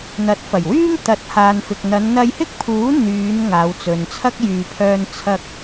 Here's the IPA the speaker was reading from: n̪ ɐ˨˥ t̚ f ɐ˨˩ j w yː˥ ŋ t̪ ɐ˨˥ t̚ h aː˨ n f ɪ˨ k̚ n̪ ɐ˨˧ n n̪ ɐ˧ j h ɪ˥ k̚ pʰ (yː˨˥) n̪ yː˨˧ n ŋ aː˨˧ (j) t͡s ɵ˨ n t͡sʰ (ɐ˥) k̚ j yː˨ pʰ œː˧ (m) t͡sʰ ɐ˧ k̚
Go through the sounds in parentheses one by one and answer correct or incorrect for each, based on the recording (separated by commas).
incorrect, incorrect, correct, incorrect